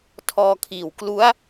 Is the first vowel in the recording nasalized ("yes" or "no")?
no